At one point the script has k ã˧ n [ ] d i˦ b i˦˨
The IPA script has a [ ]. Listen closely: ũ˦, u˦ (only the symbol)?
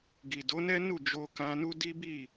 u˦